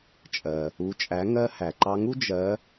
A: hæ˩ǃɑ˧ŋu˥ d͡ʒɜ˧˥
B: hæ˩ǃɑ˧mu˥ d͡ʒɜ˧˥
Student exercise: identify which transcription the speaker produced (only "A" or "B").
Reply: A